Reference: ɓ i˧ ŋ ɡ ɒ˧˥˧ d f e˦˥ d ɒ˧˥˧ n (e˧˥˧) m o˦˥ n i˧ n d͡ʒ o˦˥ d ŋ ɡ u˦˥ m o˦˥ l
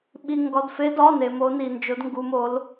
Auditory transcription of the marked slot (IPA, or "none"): e˧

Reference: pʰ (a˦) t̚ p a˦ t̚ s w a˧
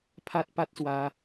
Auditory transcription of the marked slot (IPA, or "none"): a˦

